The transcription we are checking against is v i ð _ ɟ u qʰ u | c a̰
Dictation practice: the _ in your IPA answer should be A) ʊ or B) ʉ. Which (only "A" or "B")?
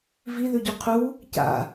B